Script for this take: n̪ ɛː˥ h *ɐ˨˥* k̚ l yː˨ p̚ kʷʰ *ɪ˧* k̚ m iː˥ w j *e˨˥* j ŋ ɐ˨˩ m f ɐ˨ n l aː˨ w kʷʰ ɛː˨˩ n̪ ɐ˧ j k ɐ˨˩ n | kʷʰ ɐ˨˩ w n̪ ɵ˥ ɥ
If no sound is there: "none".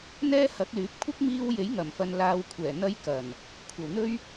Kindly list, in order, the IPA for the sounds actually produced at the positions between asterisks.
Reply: ɐ˨˥, ɪ˥, e˨˥

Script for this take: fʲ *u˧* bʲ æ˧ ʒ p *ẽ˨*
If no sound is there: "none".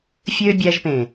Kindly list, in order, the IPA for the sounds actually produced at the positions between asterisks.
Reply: ø˧, ẽ˨

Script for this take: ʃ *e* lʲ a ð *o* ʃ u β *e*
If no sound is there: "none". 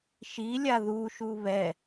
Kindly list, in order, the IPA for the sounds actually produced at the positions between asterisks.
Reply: i, u, ɛ

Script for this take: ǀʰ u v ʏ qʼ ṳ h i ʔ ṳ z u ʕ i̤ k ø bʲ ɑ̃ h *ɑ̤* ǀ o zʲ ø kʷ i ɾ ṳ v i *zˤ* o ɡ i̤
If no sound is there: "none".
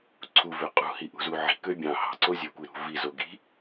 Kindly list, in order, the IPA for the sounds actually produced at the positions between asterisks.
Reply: ɑ̤, z

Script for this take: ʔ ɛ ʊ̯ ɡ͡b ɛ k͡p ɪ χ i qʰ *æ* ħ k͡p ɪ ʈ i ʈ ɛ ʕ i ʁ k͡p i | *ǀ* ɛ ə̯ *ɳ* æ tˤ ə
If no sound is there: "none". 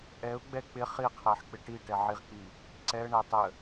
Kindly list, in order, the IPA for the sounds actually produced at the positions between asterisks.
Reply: æ, ǀ, ɳ

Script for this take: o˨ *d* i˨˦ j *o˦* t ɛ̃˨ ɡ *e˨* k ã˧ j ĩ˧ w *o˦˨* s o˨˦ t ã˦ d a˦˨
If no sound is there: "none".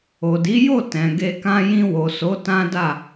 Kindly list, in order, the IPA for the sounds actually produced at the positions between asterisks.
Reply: d, o˦˨, e˧, o˨

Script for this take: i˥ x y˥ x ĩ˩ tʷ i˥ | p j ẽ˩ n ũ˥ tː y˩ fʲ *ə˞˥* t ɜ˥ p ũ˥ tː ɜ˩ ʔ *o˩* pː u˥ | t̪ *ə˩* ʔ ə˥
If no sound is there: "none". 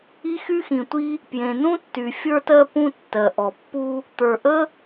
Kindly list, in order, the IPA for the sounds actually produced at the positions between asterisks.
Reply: ə˞˥, ɔ˩, ə˞˩

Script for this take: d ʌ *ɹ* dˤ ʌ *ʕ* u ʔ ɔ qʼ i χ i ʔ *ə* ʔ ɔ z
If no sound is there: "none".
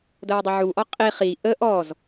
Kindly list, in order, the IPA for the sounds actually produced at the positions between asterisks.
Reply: ɹ, ʕ, ə

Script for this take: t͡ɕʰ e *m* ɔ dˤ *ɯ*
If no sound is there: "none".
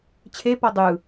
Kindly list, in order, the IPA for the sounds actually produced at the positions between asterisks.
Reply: p, ɯ

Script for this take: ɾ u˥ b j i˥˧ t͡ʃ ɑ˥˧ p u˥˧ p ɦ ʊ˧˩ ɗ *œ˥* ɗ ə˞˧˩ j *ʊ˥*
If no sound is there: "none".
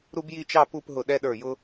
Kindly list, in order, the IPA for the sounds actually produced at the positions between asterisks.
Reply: ɛ˥, ʊ˥

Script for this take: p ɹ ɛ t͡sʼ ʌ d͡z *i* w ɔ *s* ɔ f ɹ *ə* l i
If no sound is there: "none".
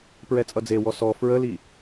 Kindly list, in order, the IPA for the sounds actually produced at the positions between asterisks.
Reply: e, s, ə

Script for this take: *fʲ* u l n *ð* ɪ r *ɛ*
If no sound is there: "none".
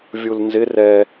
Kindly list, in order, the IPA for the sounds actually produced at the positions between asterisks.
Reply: vʲ, z, ɛ

